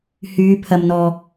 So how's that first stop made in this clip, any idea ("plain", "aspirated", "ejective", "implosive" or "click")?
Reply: aspirated